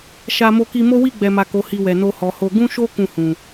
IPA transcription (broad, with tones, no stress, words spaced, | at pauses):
ʃa˧ mo˧ki˧mo˦ wi˦˨ɡ͡bɛ˨ma˨ ko˨˦hi˧wɛ˨ no˧hɔ˨ho˧ ɡũ˦ʃo˦ kũ˦˨hũ˨